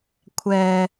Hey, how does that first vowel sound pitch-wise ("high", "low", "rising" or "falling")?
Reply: low